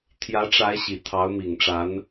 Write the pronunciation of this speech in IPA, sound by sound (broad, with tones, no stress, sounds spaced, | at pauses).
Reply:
t̪ʰ j ä˧˥ ʈ͡ʂ a˧˥ ɪ̯ ɕ i˨˩ t̪ʰ ɑ˧˥ ʊ̯ m i˨˩ ŋ ʈ͡ʂ a˧˥ n